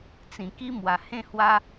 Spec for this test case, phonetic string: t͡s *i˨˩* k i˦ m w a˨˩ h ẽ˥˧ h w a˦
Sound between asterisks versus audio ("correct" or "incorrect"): incorrect